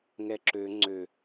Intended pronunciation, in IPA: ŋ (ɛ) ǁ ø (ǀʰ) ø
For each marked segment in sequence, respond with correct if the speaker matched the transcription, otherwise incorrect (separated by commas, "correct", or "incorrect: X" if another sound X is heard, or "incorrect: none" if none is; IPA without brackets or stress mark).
correct, incorrect: ŋ͡ǀ